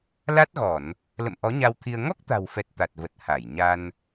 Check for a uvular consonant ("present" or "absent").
absent